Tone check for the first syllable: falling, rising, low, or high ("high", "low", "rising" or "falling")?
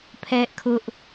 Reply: high